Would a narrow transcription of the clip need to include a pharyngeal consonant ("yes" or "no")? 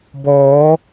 no